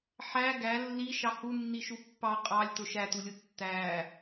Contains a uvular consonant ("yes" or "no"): yes